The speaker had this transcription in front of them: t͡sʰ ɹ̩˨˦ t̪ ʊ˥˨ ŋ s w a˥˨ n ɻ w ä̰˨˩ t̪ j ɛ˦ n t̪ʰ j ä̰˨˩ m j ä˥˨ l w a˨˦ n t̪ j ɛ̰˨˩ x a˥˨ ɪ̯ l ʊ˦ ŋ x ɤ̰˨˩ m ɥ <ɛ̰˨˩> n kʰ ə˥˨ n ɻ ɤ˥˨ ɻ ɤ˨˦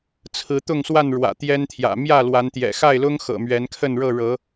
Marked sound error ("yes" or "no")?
yes